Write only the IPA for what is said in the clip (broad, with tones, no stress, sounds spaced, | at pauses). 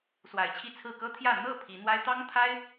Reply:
s w a˨˩ ɪ̯ t͡ɕʰ i˥˨ t͡sʰ ɹ̩˥˨ k ɤ˦ t̪ʰ j ä˥˨ n̪ ɤ˥˨ pʰ i˨˦ n̪ w a˦ ɪ̯ t̪ ɑ˦ ŋ t̪ʰ a˦ ɪ̯